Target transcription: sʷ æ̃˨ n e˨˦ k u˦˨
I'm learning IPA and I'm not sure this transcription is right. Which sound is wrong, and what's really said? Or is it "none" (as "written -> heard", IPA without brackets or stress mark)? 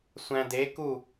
n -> d